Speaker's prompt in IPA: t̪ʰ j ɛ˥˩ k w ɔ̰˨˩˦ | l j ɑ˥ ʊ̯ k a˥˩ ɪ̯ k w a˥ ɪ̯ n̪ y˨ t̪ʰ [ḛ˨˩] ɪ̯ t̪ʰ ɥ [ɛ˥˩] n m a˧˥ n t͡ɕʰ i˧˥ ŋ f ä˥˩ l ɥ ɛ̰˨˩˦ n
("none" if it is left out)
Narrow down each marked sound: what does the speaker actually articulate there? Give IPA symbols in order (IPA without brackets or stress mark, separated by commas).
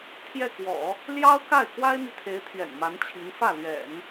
e˧˥, ɛ̰˨˩